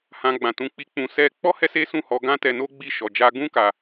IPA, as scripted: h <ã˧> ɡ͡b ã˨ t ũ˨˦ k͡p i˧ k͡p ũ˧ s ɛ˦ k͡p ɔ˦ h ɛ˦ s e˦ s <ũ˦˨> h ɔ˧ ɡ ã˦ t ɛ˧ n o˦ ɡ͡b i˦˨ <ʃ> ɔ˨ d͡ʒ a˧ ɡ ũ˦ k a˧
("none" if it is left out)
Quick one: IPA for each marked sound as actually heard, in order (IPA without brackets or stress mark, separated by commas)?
ã˧, ũ˦˨, ʃ